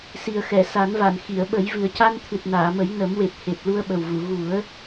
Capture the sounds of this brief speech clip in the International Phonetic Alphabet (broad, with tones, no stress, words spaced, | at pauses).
si˨˩ə̯xɛ˨˩˨sa˨˩˦nva˨˩˨n xi˨˩˨ə̯ɓə˨˩˦j vɨ˨˩ə̯ca˧nt̪ʰɨ˨˩t̚ naː˨˩˨mə˨˩˦j nə˨˩˦mwe˨˩p̚he˨˩p̚ lu˧ə̯ɓə˨˩wvu˨˩˨ ɣu˨˩˦ə̯